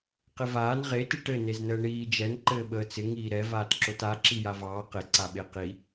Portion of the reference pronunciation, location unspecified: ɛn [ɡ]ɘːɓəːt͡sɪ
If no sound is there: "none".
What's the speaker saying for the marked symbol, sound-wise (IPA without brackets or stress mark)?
ǃ